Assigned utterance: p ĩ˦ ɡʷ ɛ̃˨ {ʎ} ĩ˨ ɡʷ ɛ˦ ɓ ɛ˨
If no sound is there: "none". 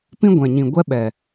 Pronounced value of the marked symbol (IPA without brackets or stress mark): ɲ